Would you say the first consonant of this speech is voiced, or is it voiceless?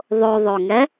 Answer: voiced